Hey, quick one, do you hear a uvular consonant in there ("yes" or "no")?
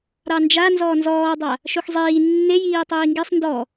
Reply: no